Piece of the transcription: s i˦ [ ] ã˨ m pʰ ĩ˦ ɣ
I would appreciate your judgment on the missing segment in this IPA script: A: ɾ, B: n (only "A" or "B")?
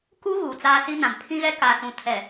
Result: B